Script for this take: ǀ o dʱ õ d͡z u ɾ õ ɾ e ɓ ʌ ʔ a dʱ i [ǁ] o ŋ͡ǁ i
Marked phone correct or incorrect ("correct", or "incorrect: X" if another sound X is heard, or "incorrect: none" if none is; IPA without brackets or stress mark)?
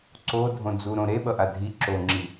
correct